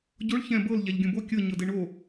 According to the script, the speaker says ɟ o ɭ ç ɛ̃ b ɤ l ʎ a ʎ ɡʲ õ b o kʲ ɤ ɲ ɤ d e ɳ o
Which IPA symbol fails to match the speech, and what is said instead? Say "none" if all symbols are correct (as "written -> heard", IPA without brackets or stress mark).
none